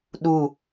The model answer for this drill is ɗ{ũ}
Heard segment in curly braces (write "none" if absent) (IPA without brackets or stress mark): u